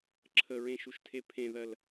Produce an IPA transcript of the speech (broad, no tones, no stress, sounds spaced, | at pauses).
ǁʰ ə ɹ ẽ ʃ u ʃ tʰ e pʰ ẽ ð ɜ l